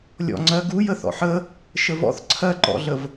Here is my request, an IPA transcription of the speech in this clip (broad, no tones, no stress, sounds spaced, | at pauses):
lʲ ɔ̰ ŋ͡ǀ ɜ ɡ u j ə θ ɔ̰ ħ ə | ʃ ə v ɔ̰ θ ǀʰ ɜ ǃ ɔ̰ ɮ ə v